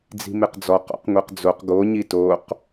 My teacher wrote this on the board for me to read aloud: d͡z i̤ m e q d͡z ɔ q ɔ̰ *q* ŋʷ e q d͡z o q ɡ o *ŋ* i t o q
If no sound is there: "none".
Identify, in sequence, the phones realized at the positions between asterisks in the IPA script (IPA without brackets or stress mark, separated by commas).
q, ɲ